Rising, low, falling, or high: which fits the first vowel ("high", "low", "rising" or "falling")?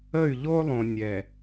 falling